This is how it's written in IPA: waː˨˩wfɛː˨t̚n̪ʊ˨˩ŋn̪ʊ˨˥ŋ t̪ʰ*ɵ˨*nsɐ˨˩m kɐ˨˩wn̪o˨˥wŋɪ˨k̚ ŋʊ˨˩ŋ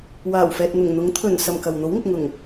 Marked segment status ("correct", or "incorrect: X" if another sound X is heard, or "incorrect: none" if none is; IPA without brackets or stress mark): incorrect: ɵ˨˩